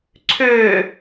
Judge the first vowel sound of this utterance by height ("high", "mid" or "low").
mid